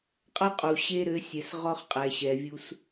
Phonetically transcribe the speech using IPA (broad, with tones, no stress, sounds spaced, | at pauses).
qʼ a˦ qʼ u˨ ɕ e˦ ɾ ɘ˨˦ sʲ ɛ˨ s ʁ ɔ˦ χ qʼ ɛ˨ ɕ ɛ˨ vʲ u˦ s